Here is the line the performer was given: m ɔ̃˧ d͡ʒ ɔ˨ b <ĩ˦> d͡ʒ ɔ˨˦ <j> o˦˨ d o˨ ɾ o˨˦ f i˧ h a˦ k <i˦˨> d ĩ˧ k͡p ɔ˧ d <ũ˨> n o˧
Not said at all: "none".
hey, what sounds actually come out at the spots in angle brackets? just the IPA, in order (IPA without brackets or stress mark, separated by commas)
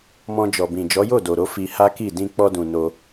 ĩ˨, j, i˦˨, ũ˨